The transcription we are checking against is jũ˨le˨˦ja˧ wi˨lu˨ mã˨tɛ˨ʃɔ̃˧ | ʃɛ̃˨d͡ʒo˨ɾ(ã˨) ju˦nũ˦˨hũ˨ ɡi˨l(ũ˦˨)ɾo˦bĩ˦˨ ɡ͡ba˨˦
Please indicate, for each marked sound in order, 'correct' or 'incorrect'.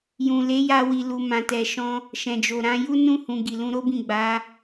incorrect, incorrect

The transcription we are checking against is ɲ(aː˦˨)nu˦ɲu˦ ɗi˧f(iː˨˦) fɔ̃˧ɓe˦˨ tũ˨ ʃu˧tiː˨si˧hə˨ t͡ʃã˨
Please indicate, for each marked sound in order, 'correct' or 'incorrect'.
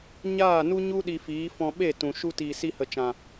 correct, correct

